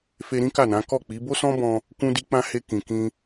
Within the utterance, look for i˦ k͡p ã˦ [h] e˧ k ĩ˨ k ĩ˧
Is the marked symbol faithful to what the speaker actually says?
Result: yes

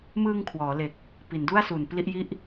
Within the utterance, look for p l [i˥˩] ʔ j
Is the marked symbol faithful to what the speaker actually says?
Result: yes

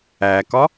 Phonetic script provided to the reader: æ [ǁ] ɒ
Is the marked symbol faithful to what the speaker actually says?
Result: no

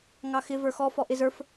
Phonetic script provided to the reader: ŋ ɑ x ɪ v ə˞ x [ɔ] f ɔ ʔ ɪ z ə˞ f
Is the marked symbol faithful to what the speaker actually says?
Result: yes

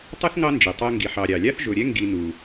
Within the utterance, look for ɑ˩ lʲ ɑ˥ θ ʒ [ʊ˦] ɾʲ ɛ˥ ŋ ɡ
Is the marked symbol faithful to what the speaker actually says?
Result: no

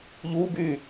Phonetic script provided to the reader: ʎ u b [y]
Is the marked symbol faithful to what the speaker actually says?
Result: yes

